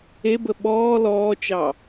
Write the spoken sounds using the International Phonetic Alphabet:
ebə ɓɔː lɔːt͡ʃɑ

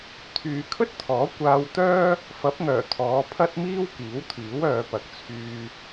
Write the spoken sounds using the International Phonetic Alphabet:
t̪ʰyː˨kʰɵ˥t̚t̪ʰɔː˨˥ kʷaː˧wt̪œː˥ | fɐ˨˥p̚ŋœː˨˩ t̪ʰɔː˨˧pʰɐ˥t̚miː˥w kiː˨˥wt̪ʰiː˨˥wœː˨˧pɐ˨˥k̚ t͡sʰyː˧

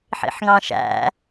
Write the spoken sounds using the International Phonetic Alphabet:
ħḭħŋɑ̃ʃæ̰

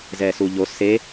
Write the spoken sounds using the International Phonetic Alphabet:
zɛsuʎo se

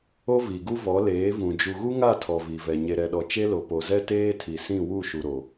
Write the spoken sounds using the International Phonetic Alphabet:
o˦vi˨ɡu˦ vɔ˨˦leː˨˦vũ˨ d͡ʒu˨ɣu˦ŋa˦˨ tʰɔ˨ vi˨vɛ˨ ɲe˨ɾɛ˨ɗɔ˨ t͡ʃe˦lo˨ po˨zɛ˦teː˦ tʰi˨ sĩ˦˨wu˦˨ʃu˨ ɾo˨

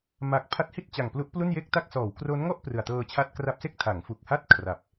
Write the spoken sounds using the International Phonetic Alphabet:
ma˨˩k̚ pʰa˦˥t̚hi˥˩t̚t͡ɕa˨˩ŋplu˦˥ʔ plu˥˩nje˥˩k̚ta˥˩k̚ sɔː˩˦wkro˦˥n ŋɔ˥˩ʔ prɯ˨˩a̯tɤː˧t͡ɕʰa˦˥t̚ kra˦˥p̚se˥˩k̚ tʰa˩˦ŋfu˨˩k̚ha˥˩t̚ kʰra˨˩p̚

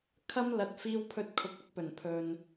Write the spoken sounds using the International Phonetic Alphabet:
kʰɐ˥m lɐ˧t̚ fiː˧wpʰɵ˧t̚kʰʊ˨k̚ ɵ˥t̚pɵ˨˩npʰɵ˨n

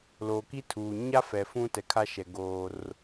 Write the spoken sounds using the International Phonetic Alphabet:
loː˨ki˦tʰuː˨ ɲa˦fɛ˨ fũ˦ tɛ˨kʰa˦ʃɛ˨ ɡoː˦r

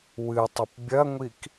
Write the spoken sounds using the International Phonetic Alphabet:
wɨtˤɘp bʲɐŋʷik

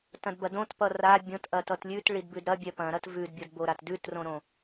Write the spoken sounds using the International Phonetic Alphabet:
tɐ̃dbɐdõtpʌ ra bʲõtʔɐtʌt lʲʉt ɭidbʉdɾɐbʲɛ pɐ̃ɾɐt vʉdbʲʌdboɾat dʉtrõɾõ

